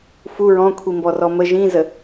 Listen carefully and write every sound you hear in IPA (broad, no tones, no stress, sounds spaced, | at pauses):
f u ɹ ɔ̃ kʷʰ i m b ɔ r ɔ m ə ʒ ĩ z ə